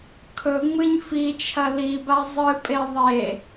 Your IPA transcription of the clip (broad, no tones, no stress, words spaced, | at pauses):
kʰɵŋ͡mɨɲ fit͡ʃʰɐ liba zˤɨpʼe ðˤe